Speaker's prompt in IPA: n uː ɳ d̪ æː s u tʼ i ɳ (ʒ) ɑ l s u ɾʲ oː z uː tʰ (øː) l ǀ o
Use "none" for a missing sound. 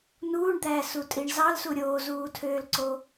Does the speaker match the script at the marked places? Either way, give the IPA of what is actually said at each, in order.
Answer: z, øː

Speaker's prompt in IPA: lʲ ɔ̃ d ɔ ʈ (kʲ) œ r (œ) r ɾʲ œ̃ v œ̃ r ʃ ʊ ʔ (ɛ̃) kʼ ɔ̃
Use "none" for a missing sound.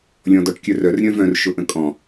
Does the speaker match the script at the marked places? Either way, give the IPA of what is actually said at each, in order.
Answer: kʲ, œ, ə̃

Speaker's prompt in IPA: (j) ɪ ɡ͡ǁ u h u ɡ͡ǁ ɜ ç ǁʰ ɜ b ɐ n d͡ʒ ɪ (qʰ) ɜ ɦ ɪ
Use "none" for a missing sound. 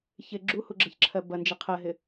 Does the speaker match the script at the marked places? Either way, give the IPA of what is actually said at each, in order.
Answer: ç, qʰ

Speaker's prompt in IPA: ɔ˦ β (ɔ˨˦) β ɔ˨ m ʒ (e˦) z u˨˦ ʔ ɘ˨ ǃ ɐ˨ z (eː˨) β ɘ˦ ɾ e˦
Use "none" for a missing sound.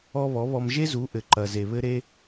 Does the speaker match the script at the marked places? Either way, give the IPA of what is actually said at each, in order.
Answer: ɔ˨˦, e˦, e˨

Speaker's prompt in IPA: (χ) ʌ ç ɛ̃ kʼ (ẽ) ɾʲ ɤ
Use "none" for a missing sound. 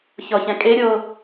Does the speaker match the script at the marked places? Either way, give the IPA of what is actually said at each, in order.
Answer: ç, e

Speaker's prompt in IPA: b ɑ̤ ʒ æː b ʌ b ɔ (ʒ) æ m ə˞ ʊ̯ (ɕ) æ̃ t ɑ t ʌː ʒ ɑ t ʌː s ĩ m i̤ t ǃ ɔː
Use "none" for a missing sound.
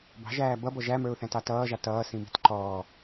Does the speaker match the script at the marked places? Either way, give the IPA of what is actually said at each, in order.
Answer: ʒ, θ

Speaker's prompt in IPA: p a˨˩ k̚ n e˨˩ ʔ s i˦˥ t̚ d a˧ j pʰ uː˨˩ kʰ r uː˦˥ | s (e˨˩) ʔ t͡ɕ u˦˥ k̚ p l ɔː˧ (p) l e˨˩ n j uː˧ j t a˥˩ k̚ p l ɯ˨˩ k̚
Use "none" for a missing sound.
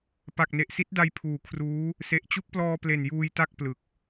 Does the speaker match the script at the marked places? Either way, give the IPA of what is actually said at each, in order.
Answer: e˨˩, p

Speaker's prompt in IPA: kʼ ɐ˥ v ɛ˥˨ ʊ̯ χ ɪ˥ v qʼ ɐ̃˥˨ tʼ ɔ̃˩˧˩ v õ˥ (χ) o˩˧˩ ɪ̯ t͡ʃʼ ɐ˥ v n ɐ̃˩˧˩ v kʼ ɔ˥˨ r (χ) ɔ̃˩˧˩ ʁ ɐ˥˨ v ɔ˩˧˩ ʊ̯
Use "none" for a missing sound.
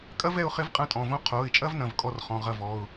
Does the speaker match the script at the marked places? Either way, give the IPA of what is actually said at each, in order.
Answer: qʰ, χ

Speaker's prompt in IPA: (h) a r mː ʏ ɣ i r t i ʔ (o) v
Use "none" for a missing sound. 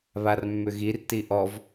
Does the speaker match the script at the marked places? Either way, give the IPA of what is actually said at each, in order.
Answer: β, ɔ

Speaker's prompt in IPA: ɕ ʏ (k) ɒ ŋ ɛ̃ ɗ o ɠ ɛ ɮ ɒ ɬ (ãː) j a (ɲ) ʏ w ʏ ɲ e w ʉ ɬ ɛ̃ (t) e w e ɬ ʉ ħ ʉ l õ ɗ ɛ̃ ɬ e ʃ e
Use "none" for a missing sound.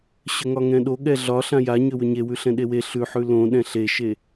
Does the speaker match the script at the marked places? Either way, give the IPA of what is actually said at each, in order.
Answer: ŋ, ã, ɲ, ɗ

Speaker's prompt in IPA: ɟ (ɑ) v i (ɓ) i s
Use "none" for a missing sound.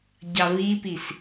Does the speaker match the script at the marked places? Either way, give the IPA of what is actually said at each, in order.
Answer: ɑ, p

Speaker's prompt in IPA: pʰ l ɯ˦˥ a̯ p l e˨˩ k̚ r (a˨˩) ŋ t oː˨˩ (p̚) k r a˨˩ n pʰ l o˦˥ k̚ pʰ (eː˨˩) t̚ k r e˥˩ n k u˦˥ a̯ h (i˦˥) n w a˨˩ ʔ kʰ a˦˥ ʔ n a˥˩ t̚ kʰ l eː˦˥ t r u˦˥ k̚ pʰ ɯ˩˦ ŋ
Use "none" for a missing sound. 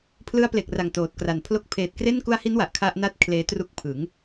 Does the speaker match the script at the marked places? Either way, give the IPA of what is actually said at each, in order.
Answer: a˨˩, t̚, eː˨˩, i˦˥

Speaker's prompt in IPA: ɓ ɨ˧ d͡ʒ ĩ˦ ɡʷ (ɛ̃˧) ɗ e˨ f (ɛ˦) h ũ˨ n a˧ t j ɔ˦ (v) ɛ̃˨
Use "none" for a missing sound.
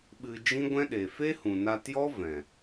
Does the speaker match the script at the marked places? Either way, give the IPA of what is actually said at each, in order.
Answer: ɛ̃˦, e˦, v

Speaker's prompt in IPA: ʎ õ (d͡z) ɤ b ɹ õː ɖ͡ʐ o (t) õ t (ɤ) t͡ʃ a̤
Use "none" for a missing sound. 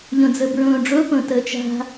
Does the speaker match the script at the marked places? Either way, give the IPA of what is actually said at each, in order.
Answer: d͡z, p, ɤ

